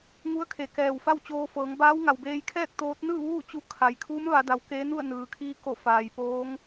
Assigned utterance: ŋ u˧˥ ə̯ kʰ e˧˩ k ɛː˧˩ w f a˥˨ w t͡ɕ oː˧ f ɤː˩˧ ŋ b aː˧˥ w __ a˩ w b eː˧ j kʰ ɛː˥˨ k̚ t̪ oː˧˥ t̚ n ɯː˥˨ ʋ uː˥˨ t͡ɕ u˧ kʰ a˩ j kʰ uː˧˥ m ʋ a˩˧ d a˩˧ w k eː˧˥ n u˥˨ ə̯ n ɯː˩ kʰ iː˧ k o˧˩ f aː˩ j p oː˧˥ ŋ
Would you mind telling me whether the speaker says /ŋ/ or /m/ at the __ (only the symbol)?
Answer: ŋ